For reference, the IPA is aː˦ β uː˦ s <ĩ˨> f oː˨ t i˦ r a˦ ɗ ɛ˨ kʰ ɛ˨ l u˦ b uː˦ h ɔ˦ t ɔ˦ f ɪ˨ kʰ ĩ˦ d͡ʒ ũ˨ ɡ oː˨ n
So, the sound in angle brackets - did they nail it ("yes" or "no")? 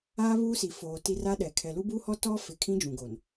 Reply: no